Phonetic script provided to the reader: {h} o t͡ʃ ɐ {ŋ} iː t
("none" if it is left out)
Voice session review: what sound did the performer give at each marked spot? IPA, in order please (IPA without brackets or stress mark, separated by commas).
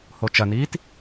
h, n